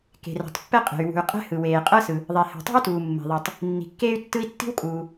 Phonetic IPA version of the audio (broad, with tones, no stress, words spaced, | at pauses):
ke̤˩rɛ̤˩tˤpːɛ˥qʼe̤˩y̯ wṳ˩y̯ qʼɛ̤˥hɯ˩weː˩ qʼɤ˥sɯ˩ | ðˤe˩he̤˩tˤṳ˥y̯tuː˩ mːe̤˩ðˤe˩tˤ | nːi̤˩kːeː˥y̯tːɯ˥i̯ tːi̤˥wkʼuː˩